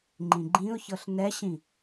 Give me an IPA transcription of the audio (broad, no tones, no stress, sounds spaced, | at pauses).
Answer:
ŋ͡ǃ ĩ ɡ͡ǃ ĩ ʊ̯ ç ɤ ɬ n ɛ ɕ ĩ